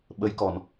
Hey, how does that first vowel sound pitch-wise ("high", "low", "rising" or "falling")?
rising